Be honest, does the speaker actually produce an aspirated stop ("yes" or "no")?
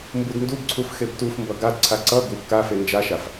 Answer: yes